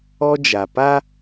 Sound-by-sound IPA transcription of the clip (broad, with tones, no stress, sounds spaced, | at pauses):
ɔ˦ d͡ʒ a˨ p a˦